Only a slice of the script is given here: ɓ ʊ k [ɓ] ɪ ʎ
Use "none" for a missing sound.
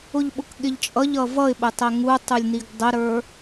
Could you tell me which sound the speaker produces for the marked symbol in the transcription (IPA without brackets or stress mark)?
ɠ